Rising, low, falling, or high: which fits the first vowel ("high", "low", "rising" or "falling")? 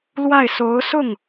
falling